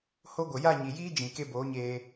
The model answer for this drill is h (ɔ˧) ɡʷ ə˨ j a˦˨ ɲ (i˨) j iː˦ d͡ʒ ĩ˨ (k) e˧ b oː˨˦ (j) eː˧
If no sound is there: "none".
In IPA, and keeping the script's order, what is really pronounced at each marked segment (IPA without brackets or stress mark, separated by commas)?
o˧, i˨, k, ɲ